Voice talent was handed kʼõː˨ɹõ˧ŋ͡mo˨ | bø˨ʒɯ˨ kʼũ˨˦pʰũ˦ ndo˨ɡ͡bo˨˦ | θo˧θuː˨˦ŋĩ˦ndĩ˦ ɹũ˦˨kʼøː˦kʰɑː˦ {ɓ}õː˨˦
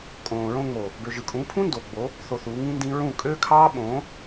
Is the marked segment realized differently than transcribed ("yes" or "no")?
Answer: no